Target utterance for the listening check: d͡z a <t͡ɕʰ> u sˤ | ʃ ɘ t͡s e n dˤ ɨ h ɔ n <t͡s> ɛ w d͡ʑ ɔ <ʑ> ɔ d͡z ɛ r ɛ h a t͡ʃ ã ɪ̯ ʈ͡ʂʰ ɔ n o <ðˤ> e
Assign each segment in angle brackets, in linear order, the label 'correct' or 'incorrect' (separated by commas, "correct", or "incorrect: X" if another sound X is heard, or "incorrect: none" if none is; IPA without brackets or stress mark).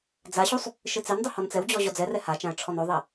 incorrect: ɕ, correct, correct, correct